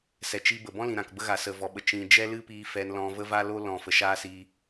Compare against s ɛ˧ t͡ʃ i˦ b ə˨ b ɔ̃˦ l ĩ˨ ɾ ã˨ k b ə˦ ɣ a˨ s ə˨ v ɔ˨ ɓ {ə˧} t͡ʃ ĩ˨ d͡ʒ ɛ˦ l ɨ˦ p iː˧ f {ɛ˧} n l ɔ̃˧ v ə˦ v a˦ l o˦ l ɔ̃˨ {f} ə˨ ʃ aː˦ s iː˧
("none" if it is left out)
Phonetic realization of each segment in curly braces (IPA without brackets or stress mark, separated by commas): ə˨, ɛ˧, f